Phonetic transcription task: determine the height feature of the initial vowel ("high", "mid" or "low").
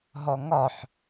mid